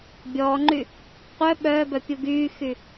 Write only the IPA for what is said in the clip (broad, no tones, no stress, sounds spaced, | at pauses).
bʲ ɔː ŋ͡ǃ y | qʷ œ ɓ œː b œ pʲ u ɡ yː x y